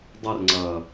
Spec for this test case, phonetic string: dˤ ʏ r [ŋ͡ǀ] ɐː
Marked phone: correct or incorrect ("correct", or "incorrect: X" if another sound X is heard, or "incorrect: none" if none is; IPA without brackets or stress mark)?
correct